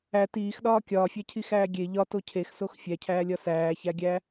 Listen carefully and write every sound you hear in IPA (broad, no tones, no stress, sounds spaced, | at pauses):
æ t iː x ɗ ɒː kʲ ɒː fʲ æ cʰ i x æː ɡʲ e ʎ ɒ t o cʰ e x s o x fʲ æ cʰ æː lʲ ɒ s æː ç æ ɡʲ æ